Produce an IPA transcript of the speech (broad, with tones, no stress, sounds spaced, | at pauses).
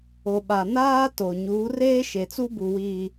o˨ ɓ a˨ n aː˦ t o˨ ɲ uː˨˦ r eː˦ ʃ e˨ t͡s u˦ b u˨ w iː˨